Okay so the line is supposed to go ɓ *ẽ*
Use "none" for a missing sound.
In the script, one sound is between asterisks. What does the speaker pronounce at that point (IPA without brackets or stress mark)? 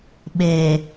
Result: e